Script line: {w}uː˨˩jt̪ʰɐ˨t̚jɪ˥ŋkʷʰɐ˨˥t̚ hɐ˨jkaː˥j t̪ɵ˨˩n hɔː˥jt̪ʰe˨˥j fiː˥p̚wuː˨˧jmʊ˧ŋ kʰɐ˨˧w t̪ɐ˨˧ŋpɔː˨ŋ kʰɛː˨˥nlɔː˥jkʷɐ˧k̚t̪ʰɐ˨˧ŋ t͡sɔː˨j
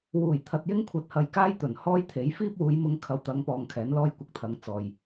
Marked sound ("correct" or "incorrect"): correct